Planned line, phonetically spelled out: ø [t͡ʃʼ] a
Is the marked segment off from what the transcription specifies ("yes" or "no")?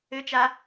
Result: yes